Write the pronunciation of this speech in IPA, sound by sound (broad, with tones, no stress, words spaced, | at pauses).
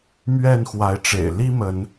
mɥɛ˥˨nxwa˨˦ɪ̯ʈ͡ʂḛ˨˩ɪ̯ li˦ mə˨˦n